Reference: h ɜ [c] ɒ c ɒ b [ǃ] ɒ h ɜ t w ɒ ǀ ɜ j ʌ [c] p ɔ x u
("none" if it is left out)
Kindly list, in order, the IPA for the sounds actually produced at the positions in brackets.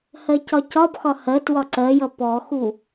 c, x, none

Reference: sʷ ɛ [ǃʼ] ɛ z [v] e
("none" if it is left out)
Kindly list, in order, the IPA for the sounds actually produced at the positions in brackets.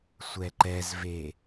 ǃ, v

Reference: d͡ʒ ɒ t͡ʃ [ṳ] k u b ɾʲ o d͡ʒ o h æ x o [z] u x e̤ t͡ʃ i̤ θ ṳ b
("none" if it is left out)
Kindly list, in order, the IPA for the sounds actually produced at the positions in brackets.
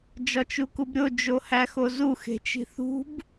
u, z

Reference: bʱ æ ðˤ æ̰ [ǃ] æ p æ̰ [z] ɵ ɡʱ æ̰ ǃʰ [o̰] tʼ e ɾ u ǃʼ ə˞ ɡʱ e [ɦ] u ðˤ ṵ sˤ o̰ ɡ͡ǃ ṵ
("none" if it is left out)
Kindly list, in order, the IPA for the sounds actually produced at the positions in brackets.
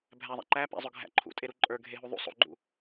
ǃ, zˤ, ṵ, ɦ

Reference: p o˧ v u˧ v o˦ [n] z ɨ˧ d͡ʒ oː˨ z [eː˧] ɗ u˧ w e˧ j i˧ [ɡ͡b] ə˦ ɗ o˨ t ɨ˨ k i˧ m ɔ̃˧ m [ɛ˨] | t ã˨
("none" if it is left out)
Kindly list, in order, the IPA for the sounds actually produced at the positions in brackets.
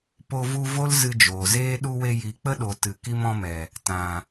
l, eː˦, k͡p, ɛ˨

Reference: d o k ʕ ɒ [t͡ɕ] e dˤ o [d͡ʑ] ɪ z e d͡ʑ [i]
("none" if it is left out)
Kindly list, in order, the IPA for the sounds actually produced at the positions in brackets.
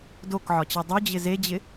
t͡ɕ, d͡ʑ, ɪ

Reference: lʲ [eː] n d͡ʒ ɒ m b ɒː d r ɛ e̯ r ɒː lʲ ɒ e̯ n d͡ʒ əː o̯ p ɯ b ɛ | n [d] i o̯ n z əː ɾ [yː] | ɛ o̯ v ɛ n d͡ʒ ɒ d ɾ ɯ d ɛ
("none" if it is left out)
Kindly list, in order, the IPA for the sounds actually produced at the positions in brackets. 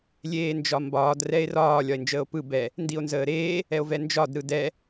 eː, d, eː

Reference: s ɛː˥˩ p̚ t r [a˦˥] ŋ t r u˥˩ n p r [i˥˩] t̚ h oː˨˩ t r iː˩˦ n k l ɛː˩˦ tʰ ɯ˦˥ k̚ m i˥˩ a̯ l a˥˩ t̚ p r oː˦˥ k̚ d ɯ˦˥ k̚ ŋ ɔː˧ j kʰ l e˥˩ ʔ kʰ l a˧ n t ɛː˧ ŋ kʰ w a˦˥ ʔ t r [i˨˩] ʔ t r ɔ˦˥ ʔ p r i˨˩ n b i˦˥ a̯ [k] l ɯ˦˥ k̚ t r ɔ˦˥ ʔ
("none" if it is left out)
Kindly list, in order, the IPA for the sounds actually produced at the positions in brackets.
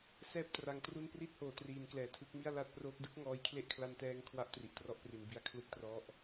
a˧, i˥˩, i˨˩, kʰ

